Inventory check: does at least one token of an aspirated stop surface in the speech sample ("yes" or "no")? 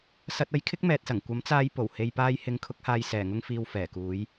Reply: yes